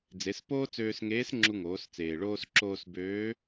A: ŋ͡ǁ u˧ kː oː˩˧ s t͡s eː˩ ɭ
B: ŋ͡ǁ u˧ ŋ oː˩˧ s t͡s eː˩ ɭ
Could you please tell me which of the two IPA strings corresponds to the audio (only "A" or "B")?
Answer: B